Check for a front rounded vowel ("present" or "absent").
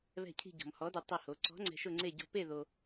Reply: absent